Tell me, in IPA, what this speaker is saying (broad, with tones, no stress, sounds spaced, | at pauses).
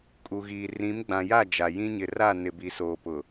kʼ u˨ ɣ iː˨ r ĩ˨˦ m ɡ͡b ã˨ j a˦˨ d͡ʒ a˨ j ĩ˦ ɲ ɪ˨ r a˦˨ n ɪ˨ b i˨ s oː˨ p ʊ˨